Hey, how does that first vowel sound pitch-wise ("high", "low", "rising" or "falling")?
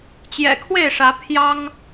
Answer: low